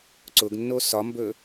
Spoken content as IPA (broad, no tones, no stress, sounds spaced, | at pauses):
ǀ ʊ ɡ nː o s ɒ m b ɵ